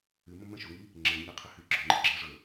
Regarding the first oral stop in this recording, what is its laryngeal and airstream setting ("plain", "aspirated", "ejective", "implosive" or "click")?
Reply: click